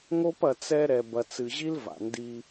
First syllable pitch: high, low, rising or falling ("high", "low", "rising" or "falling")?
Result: high